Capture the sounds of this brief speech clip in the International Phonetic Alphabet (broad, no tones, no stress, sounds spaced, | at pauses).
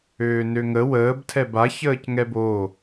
øː n ø ŋ ə w əː b tʰ ɛ b a ç əː c ŋ ɛ b o